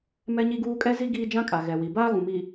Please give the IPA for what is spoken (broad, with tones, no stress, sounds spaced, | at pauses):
m ɛ˦ ɲ i˦ ɡ uː˦ kʼ ɛ˦ z i˦ ɡ iː˦ d͡ʒ ã˦ kʼ a˨ ɣ ɛ˨ w i˨ b aː˦ ɣ ũ˨ m i˨